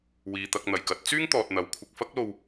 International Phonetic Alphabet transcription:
w iː˨ t̪ ɐ˨ k̚ n̪ ɐ˨˩ j k ɐ˧ t̚ t͡s yː˥ ŋ t̪ ɔː˨ t̚ n̪ ɐ˨ w kʷʰ ɪ˧ k̚ f ɐ˥ k̚ l o˧ w

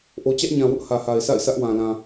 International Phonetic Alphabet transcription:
ʔ o˨ t͡ɕ ä˦ ʔ ɲ ã˨ w ʊ˦ ʔ h ä˨ h a˨ ɪ̯ s a̰˦˨ ɪ̯ s ä˦ ʔ w ã˨ l ã˨

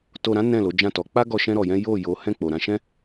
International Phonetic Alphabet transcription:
t o˧ ɾ ã˦ n ɛ̃˦˨ l o˨˦ d͡ʒ ã˦˨ t ɔ˨˦ k͡p a˦ ɡ ɔ˧ ʃ ɛ̃˦ ɾ ɔ˧ j ɛ̃˦ j o˦˨ j o˨˦ h ɛ̃˦˨ k͡p o˨ ɾ ã˧ ʃ ɛ̃˦

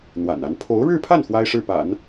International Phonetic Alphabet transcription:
n̪ w a̰˨˩ n a˧˥ n pʰ o˧˥ ʊ̯ ɻ ɻ̩˥˧ pʰ a˥˩ n x w a˥ ɪ̯ ʂ ɻ̩˥˩ p a̰˨˩˦ n

